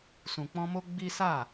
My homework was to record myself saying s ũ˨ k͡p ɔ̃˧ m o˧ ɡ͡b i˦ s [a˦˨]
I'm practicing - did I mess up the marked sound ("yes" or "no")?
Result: no